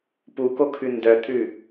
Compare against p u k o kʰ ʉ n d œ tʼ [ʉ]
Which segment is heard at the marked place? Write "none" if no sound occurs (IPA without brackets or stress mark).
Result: ʉ